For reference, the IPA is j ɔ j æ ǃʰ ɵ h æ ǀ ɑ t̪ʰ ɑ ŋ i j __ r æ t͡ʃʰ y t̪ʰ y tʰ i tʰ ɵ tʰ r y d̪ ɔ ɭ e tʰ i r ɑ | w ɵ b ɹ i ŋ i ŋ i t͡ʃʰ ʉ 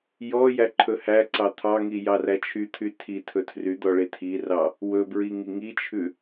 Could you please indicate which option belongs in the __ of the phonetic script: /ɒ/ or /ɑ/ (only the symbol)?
ɑ